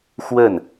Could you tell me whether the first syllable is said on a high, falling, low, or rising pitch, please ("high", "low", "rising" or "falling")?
falling